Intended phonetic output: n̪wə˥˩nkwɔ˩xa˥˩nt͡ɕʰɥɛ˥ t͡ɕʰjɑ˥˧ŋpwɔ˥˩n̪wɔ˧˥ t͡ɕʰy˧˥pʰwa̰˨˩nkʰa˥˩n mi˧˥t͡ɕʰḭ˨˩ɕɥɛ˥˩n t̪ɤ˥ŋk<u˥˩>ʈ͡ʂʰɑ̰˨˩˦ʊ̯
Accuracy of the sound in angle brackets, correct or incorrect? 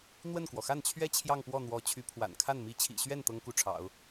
correct